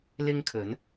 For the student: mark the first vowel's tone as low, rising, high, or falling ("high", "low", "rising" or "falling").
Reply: high